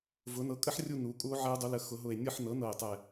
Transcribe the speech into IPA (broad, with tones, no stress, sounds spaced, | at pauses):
v ʊ˩˧ n ɤ˩˥ kʼ ə˦˥ ħ rʲ u˦˨ n u˩˧ kʼ u˦˥ o̯ ʕ ɛ˦˥ o̯ dˤ u˩˧ l ə˩˧ x ʊ˩˧ ɦ ʊ˨˩ e̯ nʲ ɤ˦˨ ħ n ɤ˩˥ n ɤ˨˩ e̯ tˤ ɛ˨˩